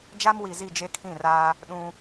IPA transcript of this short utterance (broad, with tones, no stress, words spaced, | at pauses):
d͡ʒa˦mwi˨zi˦˨ d͡ʒe˦kʰĩ˦˨raː˦ | ɗũ˦